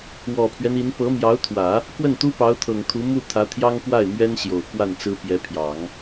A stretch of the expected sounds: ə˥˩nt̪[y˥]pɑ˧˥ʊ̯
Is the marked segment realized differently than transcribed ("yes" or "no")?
yes